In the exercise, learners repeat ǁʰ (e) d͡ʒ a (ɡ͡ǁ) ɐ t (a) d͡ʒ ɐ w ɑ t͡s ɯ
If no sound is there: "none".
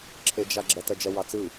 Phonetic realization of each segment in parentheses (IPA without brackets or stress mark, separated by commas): e, ɡ͡ǁ, ɐ